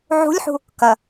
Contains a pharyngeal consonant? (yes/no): yes